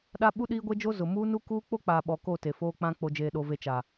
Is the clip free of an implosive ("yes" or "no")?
no